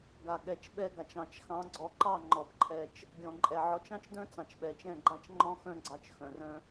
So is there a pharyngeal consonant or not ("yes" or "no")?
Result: yes